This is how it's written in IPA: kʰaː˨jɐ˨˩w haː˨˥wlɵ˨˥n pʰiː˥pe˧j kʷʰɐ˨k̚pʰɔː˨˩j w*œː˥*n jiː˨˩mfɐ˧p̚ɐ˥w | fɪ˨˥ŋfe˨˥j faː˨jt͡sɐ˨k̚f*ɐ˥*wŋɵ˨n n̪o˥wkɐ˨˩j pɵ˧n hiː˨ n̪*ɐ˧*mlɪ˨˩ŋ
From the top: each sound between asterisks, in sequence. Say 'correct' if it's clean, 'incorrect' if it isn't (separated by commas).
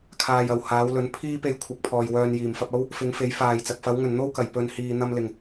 incorrect, incorrect, correct